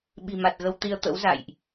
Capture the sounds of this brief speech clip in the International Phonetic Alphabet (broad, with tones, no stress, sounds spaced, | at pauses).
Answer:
ɓ i̤˨˩ m a˨˩ t̚ ɣ ə˧ w t̪ i˧ ə̯ t̪ ə̰˧˥ w z a̰˧˨ j ʔ